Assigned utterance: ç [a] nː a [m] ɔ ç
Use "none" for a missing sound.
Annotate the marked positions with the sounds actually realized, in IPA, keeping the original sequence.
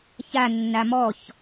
a, m

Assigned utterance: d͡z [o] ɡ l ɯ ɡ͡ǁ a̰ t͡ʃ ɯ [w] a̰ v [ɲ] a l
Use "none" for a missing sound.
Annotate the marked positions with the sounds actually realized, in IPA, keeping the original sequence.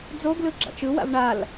o, w, ɳ

